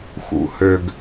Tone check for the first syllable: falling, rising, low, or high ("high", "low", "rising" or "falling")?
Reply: low